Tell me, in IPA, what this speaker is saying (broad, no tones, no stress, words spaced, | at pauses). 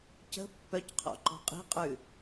cə̤ pːœcqʰɔ̰ ǃɔ̤qʼi̤qʼʉ